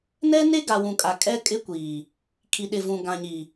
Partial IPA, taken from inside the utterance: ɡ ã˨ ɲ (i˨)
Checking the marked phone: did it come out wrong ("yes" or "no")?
no